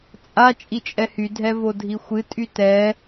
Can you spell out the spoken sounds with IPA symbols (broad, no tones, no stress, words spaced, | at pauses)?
t͡sʼa t͡ʃʼit͡ʃʼɛhy dʱɛvodʱixʷɨ tʼytɛ